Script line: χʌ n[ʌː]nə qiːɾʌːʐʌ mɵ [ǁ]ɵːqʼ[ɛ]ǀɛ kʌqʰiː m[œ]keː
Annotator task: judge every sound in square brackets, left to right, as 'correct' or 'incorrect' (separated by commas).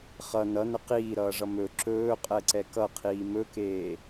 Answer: incorrect, correct, correct, incorrect